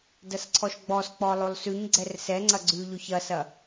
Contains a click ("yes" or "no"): yes